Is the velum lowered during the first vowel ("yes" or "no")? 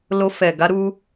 no